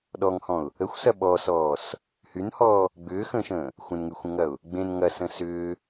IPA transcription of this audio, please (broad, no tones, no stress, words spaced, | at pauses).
ɗɔŋhɔ̃ʊ̯ | əxʷsɐ ɓɔsɔːs | hynhɔː | ɡ͡bʏːxə̃ːʃə̃ː | xʷə̃nŋyxʷə̃ŋɐʊ̯ | ɡ͡bẽn ŋɐsə̃ sʏː